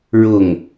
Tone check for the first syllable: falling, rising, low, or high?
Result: falling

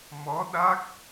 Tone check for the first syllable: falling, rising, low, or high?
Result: rising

